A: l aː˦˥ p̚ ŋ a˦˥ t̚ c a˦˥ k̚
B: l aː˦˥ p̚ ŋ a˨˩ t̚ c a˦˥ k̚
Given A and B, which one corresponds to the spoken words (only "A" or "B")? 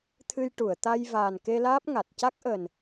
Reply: B